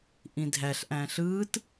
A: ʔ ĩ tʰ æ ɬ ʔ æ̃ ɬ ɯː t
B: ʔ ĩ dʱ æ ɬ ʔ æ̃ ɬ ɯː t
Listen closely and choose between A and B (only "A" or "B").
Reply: B